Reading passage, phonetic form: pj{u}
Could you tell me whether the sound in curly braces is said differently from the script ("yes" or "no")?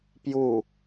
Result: no